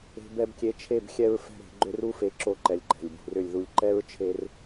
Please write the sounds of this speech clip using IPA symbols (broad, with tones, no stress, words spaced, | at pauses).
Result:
e̤˧bɛ˧bkʲe˧t͡ʃʰe˦˨b xʲɛ˦ɹfɛ̤˦ɾe̤˨˦ɡ͡ǃʏ˦r u˦fe˧ǁo˧ǃɛ˨lʲ ǃɛ̤˨lʲbṳ˨rʏ˦˨lʲðu˧lʲ ǃɛ˦ɹt͡ʃʰe˧r